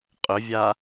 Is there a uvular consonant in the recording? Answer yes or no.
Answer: yes